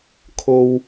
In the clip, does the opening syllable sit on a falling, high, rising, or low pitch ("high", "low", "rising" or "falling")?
low